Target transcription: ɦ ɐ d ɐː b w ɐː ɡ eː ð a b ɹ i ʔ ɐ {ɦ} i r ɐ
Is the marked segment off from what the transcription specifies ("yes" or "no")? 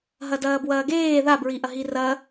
no